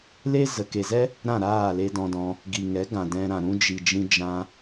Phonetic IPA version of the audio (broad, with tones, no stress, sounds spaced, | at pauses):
l e˦ z ə˨ k e˨ z ɛ˦ | ɾ ã˦˨ ɾ aː˦˨ l e˧ d ɔ̃˧ d ɔ̃˧ | ɡ i˨ ŋ ɛ˨˦ ɡ ã˨ d ɛ̃˧ ɾ ã˨ ɾ ũ˧ d͡ʒ i˨ d͡ʒ ĩ˧ d͡ʒ ã˧